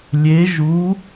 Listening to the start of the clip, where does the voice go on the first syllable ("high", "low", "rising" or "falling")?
rising